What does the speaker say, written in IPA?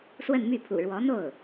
s w ə˥˧ n m y˥˩ pʰ ṵ˨˩ ɻ w ɔ˧˥ n̪ o˥˩ ʊ̯

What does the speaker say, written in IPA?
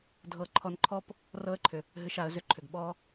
dʱ ɤ˧ ǃʰ ɔ˧ n ǃʰ ɔ˦ p | r ɤ˦ ə̯ ǃʰ ʏ˨ | ɦ ɨ˧ ʃ a˨˦ ə̯ z ʏ˦ ǃʰ ʏ˨ ɡ ɓ ɔ˦

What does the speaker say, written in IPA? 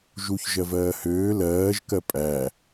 ʒ u ç ʒ ɜ v ɜː h øː l ɜː ʒ k ɜ pʼ æ

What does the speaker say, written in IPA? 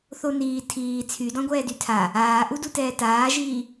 θ o n iː tʰ iː t͡sʰ y d ɔ̃ ɡʷ ɛː d y tʰ a | aː ʔ u d u t ɛː t aː ʒ iː

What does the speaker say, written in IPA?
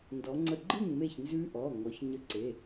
n d ɔ˩˧ ŋ͡ǀ ə˧˩ ɡ͡ǃ ɯ˥˩ ŋ m e˥˩ ç n z ʉ˦˥ ʔ ɔ˩˧˩ ŋ ɔ˩˧ ç ɲ ə˧˩ ǀ e˩˧˩

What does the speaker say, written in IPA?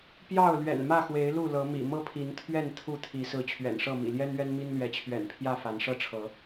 p j ɑ˥˨ ʊ̯ l ɥ ɛ̰˨˩ n m ä˥˨ x w e˨˦ ɪ̯ l u˥˨ l ɤ˨˦ m ḭ˨˩ m ɤ˥˨ pʰ i˨˦ n t̪ʰ ɥ ɛ˥˨ n t̪ʰ u˥˨ t̪ʰ i˨˦ s ɹ̩˨˦ t͡ɕʰ ɥ ɛ̰˨˩ n ʂ ɤ˥˨ m ḭ˨˩ l j ɛ˦ n ɥ ɛ˦ n m i˦ n l ɥ ɛ˨˦ t͡ɕʰ ɥ ɛ̰˨˩ n pʰ j ä˥˨ f a˨˦ n ʂ ɤ˦ ʈ͡ʂʰ ɤ˨˦

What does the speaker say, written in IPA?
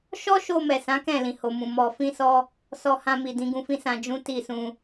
ʃ ɔ˦ ʃ o˧ m ɛ˨ s ã˨˦ k ɛ̃˦˨ l ĩ˨ h o˨ m ũ˨ m ɔ˧ f ĩ˧ s ɔ˧ | s ɔ˧ h ã˧ m i˨ d ĩ˨˦ ɡ ũ˧ f ĩ˦ s ã˧ d͡ʒ ũ˦ t i˦˨ s ũ˧

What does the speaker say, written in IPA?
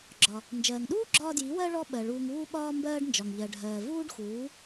ɡ͡ǁ ɒ˩ | n d͡ʒ ɜː˩ ŋ ɗ uː˥ ɡ͡ǁ ɒː˧ d j i˩˥ w ɜ˧ ɭ ɔ˥ ɓ ɜ˩ ɭ uː˧ ŋ uː˥ ɓ ɒː˥ m b ɜː˥ ɖ n d͡ʒ ɒ˩ ŋ ʎ ɜ˩ ɖʱ ɜː˩ v uː˥ ɖ x uː˩˥

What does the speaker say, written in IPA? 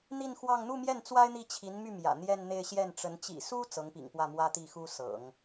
n̪ i˥˧ n x w ɑ˥˧ ŋ n̪ u˥˧ m j ɛ˥˩ n t͡s w a˥ ɪ̯ n̪ i˥˩ t͡ɕʰ i˧˥ n m y˥˩ m j ä̰˨˩ n̪ j ɛ˥˧ n n̪ e˥˧ ɪ̯ ɕ j ɛ˥˩ n ʈ͡ʂ ə˧˥ n t͡ɕ ḭ˨˩ s u˥ t͡s ɤ˧˥ ŋ p ḭ˨˩ ŋ p w ä˥˩ m w ä˥ t̪ i˥˩ x u˥ s ɤ̰˨˩˦ ŋ

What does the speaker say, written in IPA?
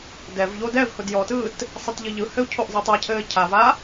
d ɛ v ʎ o d ɛ v h ʊ d j ɔ t ɯː t | sˤ ɛ t ʎ ɘ ʎ ɯ h ɘ u̯ cʰ o ʔ zˤ i tˤ a cʰ ɘː cʰ a v a

